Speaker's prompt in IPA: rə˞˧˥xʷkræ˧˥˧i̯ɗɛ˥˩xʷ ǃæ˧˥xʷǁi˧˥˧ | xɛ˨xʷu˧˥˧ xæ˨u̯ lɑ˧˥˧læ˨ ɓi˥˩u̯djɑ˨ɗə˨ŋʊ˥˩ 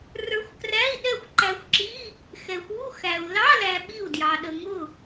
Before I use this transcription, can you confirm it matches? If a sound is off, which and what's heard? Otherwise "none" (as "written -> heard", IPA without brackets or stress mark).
none